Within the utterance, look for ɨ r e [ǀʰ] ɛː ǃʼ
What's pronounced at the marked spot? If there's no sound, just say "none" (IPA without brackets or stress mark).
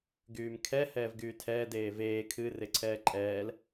ǀʰ